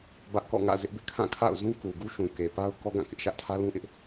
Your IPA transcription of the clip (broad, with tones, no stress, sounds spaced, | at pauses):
b ä˦ ʔ k ɔ̰˦˨ ŋ ä̰˦˨ z ɪ˦ ʔ b ɪ˦ ʔ kʰ ã˦˨ kʰ a̰˦˨ ʊ̯ z ũ˦ k u˨ ɡ u˦ ʃ ũ˨ k e˨ p a˦ ʊ̯ k ɔ˦ ɡ ã˦˨ k ɪ˦ ʔ ʃ ä˦ ʔ tʰ ä˦ l ũ˦ ʔ ɪ˦ ʔ